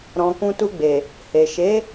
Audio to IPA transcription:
ɾɔ̃˨ kũ˧tu˧ɡ͡be˨ | he˨ʃe˨˦

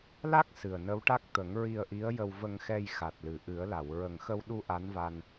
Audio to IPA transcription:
la˦˥k̚ sɨ˨˩ə̯nə˧˥wʈa˦˥k̚ t̪ə˨˩˦ŋɹi˧ə̯ʔi˧˥ə̯ jə˧wvə˧ŋxɛ˧j xa˨˩t̚lɨ˨˩˨ʔɨ˨˩˦ə̯la˨˩˨w ɹə˨˩ŋxə˧wɗu˧ ʔa˧˥nva˧n

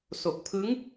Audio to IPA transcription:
so˨˩k̚ pʰɯ˦˥ŋ

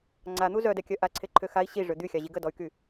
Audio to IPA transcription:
ŋ͡ǀan̪u zœdɛkʲœ ʔaǀʰeǃʰø xai̯ ɕiʐø d̪yxʲaʑi ɡədɔy̯ky

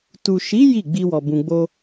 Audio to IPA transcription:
tu˨ʃi˨˦ ji˦˨ ɡ͡bi˧wɔ˨ bũ˧ɡ͡bo˦

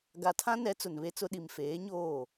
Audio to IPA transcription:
ɡa˨tʰã˦nɛ˨˦ t͡sʊ˨nβe˦t͡sʊ˦ ɗi˨mfeː˨˦ɲoː˦˨

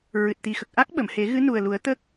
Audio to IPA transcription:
ɹɨ˨˩t̚t̪i˨˩xə˨˩k̚ ʔa˦˥k̚ɓə˨˩˨mhe˨˩˦ ɣɨ˧˥nu˨˩ə̯lu˨˩˦ə̯ t̪ə˦˥k̚

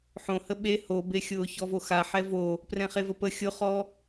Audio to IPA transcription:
ħõhə ɓe hobexʲʊː çɔvoxa ħɛvo | prɛ̃χevəpə xʲʊχɔ

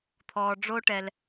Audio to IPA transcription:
t̪ʰɔː˨ɖ͡ʐo˦ʈɛ˨l

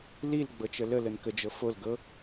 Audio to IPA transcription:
lil ɡ͡bɤt͡ʃələlən kəd͡ʒɤ fol ɡɤ

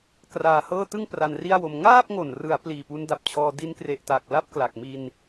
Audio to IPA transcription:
kraː˧hɤː˥˩ tɯ˥˩ŋ pra˧nri˥˩a̯wo˧m ŋaː˥˩p̚ŋo˨˩nrɯ˩˦a̯ pliː˨˩pu˦˥nda˨˩p̚t͡ɕʰɔː˧ di˦˥nkre˨˩ʔta˨˩k̚ la˥˩p̚kla˨˩k̚mi˧n

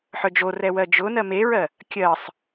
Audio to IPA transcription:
ħœd͡ʒorɛ wɜd͡ʒʊnɜ meɹɜ | kʲɜsˤ

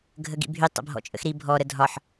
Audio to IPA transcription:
ɡʱəɡḭbʱy tˤə̰bʱɔ̰t͡ʃʼə̰xɾi bʱɔ ɾədʱɒħ

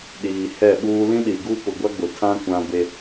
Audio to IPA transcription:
ɗiː˨hɛ˦˨ɓuː˦ lĩ˦ɗi˨ ɡu˦pʊ˨ɡʷa˦ ɡ͡bʊ˨tʰã˦ kʷã˦be˦

